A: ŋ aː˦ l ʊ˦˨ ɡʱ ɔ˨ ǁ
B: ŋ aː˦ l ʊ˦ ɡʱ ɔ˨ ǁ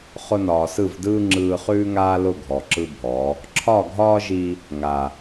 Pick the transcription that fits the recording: A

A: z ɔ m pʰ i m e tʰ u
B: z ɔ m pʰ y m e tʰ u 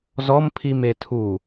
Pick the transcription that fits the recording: A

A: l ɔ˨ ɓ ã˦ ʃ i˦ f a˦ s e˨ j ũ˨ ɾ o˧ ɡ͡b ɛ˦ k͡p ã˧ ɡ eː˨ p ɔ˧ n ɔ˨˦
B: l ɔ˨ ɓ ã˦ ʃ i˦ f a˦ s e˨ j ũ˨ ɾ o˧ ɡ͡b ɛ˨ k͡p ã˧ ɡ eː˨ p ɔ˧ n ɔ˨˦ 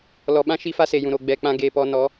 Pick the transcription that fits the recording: B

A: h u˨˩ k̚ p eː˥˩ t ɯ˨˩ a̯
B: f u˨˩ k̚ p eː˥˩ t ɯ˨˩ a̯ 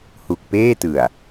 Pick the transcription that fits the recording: A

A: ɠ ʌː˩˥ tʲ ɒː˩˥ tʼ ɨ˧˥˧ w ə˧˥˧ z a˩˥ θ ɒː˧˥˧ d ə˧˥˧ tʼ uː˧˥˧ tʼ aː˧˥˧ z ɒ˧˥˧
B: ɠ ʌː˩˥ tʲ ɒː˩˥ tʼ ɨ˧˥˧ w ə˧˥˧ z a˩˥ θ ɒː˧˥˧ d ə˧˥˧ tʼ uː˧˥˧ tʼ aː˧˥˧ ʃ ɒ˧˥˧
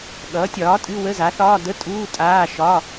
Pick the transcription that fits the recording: B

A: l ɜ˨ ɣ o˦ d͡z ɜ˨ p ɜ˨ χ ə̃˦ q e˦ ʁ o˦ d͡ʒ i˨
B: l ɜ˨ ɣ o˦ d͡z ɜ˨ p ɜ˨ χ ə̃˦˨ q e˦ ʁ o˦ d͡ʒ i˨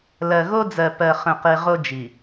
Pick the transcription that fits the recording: B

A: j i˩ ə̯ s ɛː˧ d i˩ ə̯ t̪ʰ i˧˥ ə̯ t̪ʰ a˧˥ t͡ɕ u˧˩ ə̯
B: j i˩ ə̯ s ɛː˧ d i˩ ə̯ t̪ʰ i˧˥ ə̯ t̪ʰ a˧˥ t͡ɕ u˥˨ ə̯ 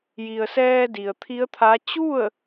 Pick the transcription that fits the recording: B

